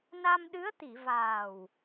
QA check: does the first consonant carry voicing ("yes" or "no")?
yes